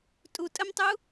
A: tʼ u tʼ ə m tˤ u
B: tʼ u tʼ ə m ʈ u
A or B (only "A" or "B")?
A